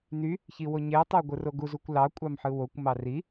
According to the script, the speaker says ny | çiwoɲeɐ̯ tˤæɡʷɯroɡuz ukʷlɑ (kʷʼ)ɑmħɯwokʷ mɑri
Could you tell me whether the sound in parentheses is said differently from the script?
no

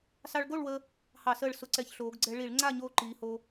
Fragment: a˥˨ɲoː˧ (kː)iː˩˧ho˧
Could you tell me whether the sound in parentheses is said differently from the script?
yes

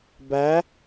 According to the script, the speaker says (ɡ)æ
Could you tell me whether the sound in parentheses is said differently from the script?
yes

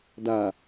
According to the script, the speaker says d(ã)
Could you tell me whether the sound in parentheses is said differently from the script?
yes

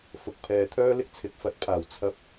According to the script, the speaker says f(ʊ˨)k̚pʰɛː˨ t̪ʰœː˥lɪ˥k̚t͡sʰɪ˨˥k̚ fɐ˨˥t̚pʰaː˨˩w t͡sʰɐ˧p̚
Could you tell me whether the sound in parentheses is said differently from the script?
no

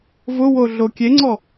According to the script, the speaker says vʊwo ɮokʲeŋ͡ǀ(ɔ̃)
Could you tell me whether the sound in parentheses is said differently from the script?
yes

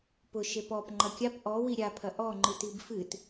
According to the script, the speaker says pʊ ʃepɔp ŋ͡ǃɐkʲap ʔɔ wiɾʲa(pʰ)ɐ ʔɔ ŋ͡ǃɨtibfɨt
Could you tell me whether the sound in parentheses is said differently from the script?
no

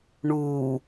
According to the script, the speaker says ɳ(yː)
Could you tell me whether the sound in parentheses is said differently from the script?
yes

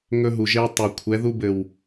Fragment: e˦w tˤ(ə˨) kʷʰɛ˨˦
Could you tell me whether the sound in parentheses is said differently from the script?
yes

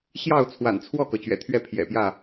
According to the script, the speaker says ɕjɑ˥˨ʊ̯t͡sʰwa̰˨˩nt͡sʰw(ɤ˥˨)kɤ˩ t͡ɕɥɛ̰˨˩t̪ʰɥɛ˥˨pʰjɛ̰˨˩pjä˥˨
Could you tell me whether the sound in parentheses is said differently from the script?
yes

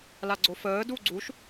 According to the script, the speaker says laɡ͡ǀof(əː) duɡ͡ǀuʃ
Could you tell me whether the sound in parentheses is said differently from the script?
no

